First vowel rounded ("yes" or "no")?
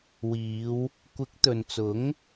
no